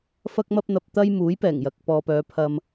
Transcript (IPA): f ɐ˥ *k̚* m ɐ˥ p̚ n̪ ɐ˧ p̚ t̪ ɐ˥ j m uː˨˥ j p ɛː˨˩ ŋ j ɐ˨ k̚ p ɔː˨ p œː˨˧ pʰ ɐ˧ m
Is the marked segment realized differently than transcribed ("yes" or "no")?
no